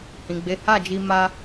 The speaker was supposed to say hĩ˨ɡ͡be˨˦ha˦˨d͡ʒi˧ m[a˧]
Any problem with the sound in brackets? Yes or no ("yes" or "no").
no